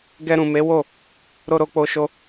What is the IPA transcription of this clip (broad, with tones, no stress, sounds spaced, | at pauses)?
ɡ ɛ˧ ɾ ũ˨ m e˨˦ w o˦˨ | ɾ o˧ ɾ o˧ k͡p o˧ ʃ o˧